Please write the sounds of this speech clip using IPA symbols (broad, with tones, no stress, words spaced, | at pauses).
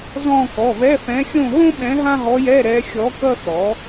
zɔ̃˦˨ kɔ˩˧˩vɛ˧˥˧fɛ̃˧˥ xʲõ˦˨ɦõ˥ ɓɛ̃˧˥ɦã˥ɦɔ˧˥jɛ˧˥˧ ɾɛ˧˥xʲɔ˧˥ kʌ˥θɔ˩˥